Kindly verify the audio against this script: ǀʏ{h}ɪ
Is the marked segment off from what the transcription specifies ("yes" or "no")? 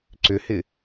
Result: no